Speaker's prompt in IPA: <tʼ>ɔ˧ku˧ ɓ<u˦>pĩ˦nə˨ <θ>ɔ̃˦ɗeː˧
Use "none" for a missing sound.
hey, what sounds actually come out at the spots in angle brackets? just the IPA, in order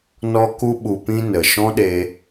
n, u˧, ʃ

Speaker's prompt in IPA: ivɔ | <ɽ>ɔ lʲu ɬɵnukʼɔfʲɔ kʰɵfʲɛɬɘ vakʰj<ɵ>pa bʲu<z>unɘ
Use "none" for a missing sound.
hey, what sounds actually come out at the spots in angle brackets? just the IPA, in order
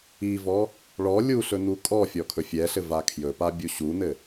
ɭ, ɵ, ɕ

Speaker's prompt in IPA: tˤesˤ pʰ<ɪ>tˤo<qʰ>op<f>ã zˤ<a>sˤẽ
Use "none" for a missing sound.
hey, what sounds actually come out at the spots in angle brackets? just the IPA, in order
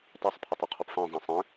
ɪ, qʰ, f, ã

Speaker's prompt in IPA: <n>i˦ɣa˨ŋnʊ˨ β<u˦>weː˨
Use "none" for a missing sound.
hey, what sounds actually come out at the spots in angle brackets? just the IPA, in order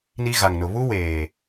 n, u˦

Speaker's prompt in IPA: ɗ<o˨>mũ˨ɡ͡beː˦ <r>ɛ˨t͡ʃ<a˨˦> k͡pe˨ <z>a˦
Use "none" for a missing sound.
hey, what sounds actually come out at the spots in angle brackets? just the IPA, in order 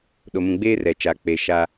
o˨, r, a˨˦, ʃ

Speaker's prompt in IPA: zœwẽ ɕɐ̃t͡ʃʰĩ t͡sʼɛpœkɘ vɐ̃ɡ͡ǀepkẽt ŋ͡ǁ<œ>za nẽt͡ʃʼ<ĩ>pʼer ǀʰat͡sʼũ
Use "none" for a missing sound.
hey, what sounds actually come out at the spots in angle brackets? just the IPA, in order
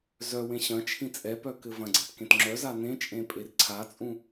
œ, ẽ

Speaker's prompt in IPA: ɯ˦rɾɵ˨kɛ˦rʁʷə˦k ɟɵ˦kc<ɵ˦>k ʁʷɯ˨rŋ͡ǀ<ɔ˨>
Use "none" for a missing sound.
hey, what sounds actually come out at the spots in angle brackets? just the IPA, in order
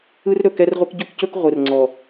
ɵ˦, ɔ˨

